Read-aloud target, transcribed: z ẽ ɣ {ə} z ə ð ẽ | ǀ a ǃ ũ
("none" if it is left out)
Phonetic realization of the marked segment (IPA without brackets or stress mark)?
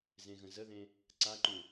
ə̃